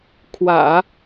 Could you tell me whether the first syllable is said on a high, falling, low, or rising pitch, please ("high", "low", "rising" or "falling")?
low